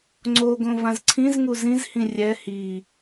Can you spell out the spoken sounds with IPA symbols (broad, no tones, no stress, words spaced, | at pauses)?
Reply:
ŋ͡ǀoɡõ vãzǀʰĩzŋu zĩzhĩ rʲɛ hi